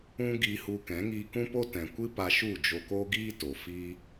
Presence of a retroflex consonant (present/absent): absent